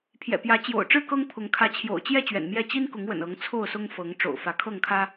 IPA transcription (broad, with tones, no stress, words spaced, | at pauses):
pʰjɛ̰˨˩pjä˨˦ t͡ɕjo̰˨˩ʊ̯ʈ͡ʂɻ̩˥˨ kɤ˦ŋ pʰʊ˨˦ŋ kʰä˨˦t͡ɕʰjo̰˨˩ʊ̯t͡ɕjɛ˥˨ t͡ɕɥɛ̰˨˩nmjɛ˥˨ t͡ɕi˦nkʊ˨˦ŋwə̰˨˩n ɤ˨˦ŋ t͡sʰo˥˨ʊ̯sʊ˦ŋ fɤ˨˦ŋ ʈ͡ʂo̰˨˩ʊ̯fä˨˦kʰɤ˥˨ŋkʰä˦